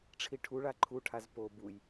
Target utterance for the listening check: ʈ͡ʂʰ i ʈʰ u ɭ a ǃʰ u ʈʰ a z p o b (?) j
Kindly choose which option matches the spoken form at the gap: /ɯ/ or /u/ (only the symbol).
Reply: u